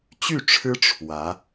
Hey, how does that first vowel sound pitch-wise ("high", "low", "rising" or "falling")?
falling